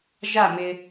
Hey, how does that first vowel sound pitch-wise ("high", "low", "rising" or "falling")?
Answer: falling